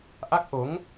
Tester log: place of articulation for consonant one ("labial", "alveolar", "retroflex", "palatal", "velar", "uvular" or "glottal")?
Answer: glottal